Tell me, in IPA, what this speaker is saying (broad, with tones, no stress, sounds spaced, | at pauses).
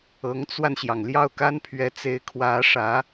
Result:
ɤ˧˥ ŋ t͡s w a˧ n ɕ j ɑ˩ ŋ l j ɑ˥˩ ʊ̯ k a˥ n pʰ ɥ ɛ˧˥ t͡s e˧˥ ɪ̯ kʰ w ä˧˥ ʂ ä˧˥